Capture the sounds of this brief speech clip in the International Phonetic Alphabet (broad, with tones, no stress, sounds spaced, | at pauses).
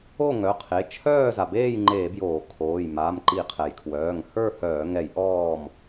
o˥˨ ŋ œ˩˧˩ qʰ e˩˧˩ t͡ʃʰ œː˥˨ z a˩ b eː˥˨ j ŋ͡ǃ eː˧˩˧ b j oː˧˩˧ kʰ oː˩˧˩ j m aː˩˧˩ m ǃ i˧˩˧ qʰ ɛ˩ j kʰ w œː˩˧˩ ŋ h ə˞˥˨ h œː˧˩˧ ŋ ɛ˧˩˧ j ʔ ɔː˥˨ m